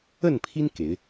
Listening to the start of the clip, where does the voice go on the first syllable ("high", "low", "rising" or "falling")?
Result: falling